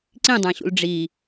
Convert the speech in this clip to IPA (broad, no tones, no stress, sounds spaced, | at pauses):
ǀ ĩ dˤ æ̃ ɕ ṵ l ɖ͡ʐ i